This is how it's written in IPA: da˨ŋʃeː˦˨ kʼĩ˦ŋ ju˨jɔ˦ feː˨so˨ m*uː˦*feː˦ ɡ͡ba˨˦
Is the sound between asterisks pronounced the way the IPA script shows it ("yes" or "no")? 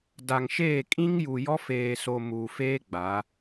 no